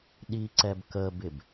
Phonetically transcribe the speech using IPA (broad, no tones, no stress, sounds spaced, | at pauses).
ɗ i ǀ ɛ b k ə b ɪ b